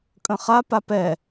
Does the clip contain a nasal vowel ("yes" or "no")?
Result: yes